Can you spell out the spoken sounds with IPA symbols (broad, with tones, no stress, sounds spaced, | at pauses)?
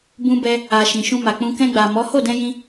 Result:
b ũ˧ b ɛ˧ | a˨ ʃ ĩ˨ ʃ ũ˧ m a˨ k͡p ũ˧ k ɛ̃˧ ɡ͡b a˨ m ɔ˨˦ h o˦˨ d ɛ̃˧ j ĩ˧